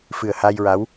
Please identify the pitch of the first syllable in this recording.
low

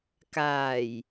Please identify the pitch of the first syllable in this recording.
low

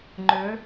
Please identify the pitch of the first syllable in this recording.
rising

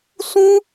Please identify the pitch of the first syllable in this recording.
high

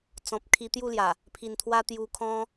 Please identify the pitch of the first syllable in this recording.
low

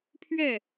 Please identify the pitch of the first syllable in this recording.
falling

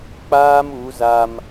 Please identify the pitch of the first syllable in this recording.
high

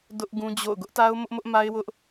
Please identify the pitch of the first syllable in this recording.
high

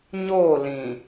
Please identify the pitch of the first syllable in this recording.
falling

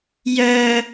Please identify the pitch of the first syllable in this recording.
high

